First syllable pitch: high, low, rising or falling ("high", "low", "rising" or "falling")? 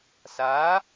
rising